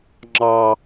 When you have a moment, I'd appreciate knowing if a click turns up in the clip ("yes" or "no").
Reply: yes